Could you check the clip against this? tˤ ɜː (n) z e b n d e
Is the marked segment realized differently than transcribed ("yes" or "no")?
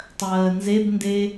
no